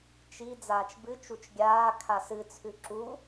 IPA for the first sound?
t͡ʃ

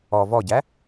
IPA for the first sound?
ɔ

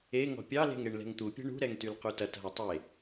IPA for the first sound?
e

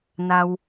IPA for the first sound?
n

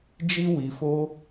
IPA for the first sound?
d͡ʒ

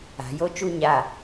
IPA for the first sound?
a̤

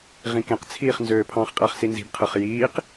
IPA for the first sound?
ʁ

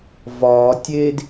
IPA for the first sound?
v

